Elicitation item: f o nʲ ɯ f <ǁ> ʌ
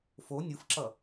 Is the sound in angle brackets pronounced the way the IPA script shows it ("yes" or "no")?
yes